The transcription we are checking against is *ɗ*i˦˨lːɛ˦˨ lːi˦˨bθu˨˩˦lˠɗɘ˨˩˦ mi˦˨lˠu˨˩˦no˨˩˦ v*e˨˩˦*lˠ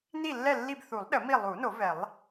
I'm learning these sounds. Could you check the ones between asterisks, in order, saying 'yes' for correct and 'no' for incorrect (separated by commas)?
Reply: no, no